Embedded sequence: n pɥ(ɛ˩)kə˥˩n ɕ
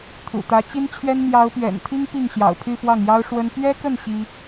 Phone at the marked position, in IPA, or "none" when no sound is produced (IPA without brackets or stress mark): ɛ˥